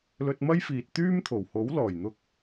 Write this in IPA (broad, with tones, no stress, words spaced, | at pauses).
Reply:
lɵ˧t̚mɐ˥jfiː˨t̚ t̪yː˥mt̪ʰo˨˩w ho˨˥wlɔː˨˩jn̪ʊ˧k̚